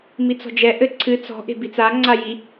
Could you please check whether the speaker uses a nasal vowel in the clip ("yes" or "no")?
no